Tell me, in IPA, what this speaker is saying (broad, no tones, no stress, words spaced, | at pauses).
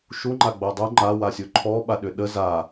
ʃuŋ͡ǃaɡ͡bo dˤu ŋ͡ǃawasʲo ǃʰɔɓaɗʏ ɗə za